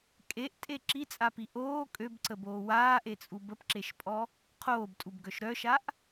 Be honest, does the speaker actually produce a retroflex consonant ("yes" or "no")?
no